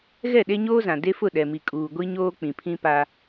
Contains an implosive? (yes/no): yes